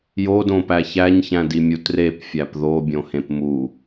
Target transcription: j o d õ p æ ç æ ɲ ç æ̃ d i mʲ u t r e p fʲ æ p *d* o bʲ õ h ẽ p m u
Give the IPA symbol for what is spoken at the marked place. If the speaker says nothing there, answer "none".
ð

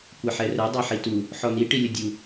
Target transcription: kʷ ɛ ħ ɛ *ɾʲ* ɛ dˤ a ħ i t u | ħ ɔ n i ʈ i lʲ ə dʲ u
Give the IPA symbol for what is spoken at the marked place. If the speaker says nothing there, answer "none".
r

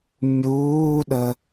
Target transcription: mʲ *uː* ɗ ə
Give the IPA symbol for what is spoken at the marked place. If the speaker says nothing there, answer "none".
uː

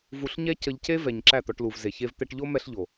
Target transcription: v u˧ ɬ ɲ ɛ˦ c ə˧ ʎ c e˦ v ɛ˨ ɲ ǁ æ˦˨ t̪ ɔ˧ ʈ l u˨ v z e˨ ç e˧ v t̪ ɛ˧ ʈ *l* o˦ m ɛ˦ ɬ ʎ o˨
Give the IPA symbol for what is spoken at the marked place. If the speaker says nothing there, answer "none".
ʎ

